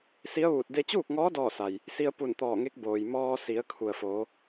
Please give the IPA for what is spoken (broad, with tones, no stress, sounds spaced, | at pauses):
s i˧˥ ə̯ ʋ uː˧˩ t̚ d e˧ t͡ɕ uː˥˨ k̚ ŋ ɔː˧˥ d ɔː˥˨ s a˩ j | s i˧ ə̯ p u˧˩ n t̪ ɔː˧˩ ŋ e˧˥ k̚ b oː˩ j m ɔː˧ s i˩˧ ə̯ kʰ u˩ ə̯ f oː˩˧